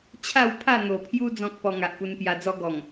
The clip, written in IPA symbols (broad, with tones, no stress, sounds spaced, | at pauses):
t͡ɕʰ a˥˧ w pʰ a˥˧ n̪ o˨˩ pʰ j u˦ d͡z ɔ̃˦ k̚ p ɔ˧ ŋ a˨ ʔ p u˧ n p j a˧ d͡z ɔ˦ ɡ ɔ˨˩ ŋ